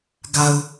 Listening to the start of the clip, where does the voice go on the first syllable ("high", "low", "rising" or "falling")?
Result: low